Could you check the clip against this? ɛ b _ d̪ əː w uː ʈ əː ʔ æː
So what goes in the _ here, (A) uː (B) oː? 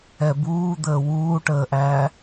A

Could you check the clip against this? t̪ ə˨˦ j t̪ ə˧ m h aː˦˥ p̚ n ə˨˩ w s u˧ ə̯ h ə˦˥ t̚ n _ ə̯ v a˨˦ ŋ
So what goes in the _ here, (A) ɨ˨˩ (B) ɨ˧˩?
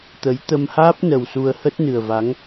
A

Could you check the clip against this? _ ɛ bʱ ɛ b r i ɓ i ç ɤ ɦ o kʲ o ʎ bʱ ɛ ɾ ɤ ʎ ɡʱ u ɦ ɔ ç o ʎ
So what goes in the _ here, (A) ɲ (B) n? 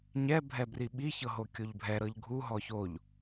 A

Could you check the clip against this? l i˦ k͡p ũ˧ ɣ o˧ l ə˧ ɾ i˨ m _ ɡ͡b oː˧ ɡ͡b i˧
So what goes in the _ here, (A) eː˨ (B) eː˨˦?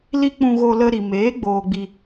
B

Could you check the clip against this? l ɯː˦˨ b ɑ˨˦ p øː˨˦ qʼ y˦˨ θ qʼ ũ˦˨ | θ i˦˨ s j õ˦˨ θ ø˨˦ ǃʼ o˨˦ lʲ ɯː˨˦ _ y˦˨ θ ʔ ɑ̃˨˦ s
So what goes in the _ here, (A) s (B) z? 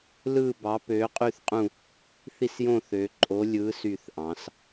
A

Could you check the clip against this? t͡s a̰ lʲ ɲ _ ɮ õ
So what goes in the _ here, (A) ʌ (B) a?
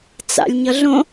A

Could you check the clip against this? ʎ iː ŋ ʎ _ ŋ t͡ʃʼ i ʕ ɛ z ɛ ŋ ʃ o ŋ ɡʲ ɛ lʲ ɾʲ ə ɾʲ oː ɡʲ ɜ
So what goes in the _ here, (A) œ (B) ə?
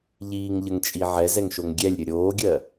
B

